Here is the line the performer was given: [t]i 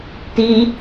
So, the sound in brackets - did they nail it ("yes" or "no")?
yes